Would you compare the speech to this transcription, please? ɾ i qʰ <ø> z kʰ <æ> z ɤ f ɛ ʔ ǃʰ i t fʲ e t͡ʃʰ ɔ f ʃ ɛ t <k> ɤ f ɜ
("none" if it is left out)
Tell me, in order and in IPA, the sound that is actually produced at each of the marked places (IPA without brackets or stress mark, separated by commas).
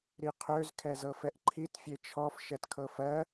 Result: ø, ɛ, kʰ